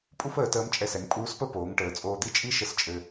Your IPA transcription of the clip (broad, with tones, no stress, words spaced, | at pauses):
pʼu˥fəː˩˧ təː˧˥mt͡ʃʼɛ˧sɛ˩˧ŋ pʼuː˧˥spə˥ poː˩˧ŋʈəː˩˧t͡sʼoː˧d̪i˥ t͡ʃʼi˥ʃə˧˥s t͡ʃʼɘ˧